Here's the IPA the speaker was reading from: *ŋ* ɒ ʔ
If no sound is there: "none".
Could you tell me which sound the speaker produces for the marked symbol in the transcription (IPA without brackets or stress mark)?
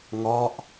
ŋ